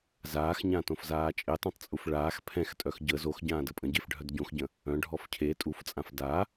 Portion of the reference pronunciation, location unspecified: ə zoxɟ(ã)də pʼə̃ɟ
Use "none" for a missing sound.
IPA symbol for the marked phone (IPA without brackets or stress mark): ãː